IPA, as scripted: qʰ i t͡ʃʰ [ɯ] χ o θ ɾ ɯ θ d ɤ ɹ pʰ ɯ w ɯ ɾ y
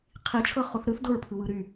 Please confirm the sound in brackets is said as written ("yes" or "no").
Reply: no